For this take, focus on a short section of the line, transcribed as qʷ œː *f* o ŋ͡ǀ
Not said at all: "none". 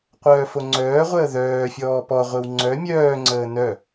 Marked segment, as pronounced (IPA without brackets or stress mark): f